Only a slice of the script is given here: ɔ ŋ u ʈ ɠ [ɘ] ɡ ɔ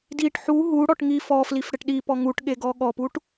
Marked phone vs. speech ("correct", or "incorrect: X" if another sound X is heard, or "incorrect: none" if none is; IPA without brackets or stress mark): incorrect: e